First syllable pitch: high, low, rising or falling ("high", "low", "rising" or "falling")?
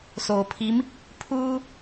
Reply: low